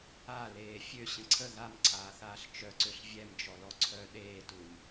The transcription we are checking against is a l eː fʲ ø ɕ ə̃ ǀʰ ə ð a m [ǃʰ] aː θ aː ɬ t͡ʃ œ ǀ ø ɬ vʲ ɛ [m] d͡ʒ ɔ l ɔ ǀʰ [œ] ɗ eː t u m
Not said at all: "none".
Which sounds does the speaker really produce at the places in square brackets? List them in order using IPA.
ǀʰ, m, œ

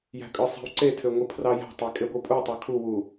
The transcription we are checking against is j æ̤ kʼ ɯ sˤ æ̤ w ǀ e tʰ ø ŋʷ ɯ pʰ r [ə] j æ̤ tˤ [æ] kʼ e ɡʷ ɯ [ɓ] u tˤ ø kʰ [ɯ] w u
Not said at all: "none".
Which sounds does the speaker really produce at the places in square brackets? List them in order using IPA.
ɑ, æ, pʼ, u

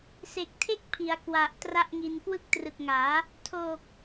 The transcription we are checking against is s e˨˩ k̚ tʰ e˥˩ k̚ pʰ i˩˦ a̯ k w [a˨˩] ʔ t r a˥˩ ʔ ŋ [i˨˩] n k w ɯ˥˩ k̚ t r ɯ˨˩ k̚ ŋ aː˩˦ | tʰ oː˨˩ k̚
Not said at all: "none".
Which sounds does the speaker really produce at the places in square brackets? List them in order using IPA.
a˨˩, i˧

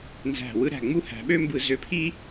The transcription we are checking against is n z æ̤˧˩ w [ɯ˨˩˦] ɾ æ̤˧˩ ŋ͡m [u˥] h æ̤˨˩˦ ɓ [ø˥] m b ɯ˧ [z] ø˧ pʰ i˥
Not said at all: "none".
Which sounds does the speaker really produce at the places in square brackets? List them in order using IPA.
ɯ˧, u˥, ø˥, z

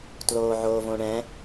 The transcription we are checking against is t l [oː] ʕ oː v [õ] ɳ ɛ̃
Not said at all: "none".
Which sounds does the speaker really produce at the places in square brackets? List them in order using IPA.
oː, õ

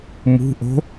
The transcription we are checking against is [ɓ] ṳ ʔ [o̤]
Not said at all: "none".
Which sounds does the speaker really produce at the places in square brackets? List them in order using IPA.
m, o̤

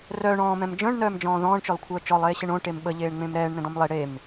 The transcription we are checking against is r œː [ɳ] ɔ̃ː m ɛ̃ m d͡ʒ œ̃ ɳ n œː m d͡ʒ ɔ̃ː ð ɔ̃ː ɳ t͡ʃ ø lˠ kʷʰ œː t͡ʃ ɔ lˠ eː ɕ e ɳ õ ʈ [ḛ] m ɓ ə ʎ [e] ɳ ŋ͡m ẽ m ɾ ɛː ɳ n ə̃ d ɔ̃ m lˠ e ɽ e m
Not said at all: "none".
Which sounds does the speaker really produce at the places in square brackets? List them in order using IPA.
ɳ, e, eː

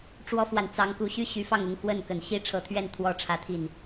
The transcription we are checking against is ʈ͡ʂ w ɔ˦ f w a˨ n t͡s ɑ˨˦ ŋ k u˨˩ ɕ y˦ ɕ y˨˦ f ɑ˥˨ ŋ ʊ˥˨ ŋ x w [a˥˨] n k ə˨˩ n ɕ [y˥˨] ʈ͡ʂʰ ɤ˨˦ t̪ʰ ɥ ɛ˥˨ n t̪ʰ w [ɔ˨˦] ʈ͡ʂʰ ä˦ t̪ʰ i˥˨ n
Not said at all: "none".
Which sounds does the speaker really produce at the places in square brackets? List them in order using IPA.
ə˥˨, i˥˨, ɔ˦

